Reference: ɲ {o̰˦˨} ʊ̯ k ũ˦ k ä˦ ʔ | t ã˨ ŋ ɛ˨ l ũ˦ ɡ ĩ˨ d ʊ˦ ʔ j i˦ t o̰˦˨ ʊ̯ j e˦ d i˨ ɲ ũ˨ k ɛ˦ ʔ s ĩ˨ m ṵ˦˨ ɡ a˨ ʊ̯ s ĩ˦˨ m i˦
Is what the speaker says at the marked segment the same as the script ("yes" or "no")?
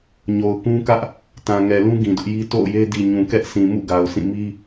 no